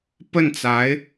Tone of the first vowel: falling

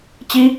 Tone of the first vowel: high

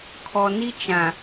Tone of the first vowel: low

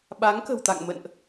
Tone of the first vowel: rising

